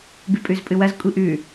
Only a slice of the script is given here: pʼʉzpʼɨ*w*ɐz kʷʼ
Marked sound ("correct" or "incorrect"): correct